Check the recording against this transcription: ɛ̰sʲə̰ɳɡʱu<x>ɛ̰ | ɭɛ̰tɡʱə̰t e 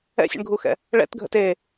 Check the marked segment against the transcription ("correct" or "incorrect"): correct